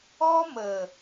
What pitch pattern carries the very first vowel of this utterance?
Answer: high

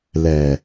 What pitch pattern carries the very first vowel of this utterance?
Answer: low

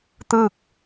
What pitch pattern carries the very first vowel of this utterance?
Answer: falling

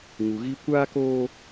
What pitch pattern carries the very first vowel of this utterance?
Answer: low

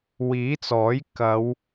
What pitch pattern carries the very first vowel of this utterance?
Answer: rising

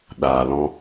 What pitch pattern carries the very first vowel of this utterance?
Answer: low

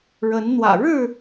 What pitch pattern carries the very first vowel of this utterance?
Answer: rising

